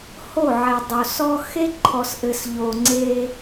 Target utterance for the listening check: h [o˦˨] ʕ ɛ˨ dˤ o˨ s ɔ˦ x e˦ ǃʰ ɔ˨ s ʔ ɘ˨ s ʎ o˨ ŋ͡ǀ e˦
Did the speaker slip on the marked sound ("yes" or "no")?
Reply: no